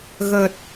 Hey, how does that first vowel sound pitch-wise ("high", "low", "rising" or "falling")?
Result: low